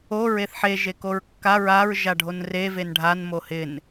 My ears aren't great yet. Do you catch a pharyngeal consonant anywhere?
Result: yes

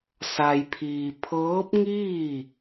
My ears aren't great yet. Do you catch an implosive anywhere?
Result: no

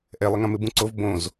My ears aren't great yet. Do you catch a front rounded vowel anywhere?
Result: no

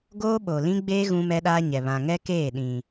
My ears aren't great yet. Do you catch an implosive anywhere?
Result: yes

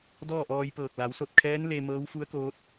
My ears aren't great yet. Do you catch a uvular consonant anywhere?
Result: no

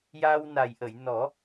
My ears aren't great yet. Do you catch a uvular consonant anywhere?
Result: no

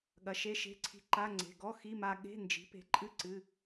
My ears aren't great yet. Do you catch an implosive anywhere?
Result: yes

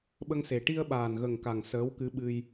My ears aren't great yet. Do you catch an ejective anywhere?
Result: no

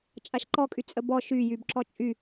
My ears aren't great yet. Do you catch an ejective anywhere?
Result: yes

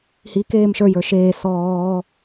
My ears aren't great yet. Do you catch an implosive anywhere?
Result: no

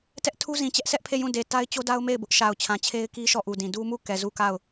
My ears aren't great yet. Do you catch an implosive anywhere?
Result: no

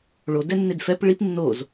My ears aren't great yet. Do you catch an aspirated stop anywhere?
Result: no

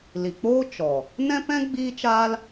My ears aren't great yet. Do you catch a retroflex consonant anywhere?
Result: no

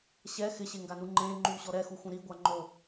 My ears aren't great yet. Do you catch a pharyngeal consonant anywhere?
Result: no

